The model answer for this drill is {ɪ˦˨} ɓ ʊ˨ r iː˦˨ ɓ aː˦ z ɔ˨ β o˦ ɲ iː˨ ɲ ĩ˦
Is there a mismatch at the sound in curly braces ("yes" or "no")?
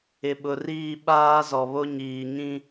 yes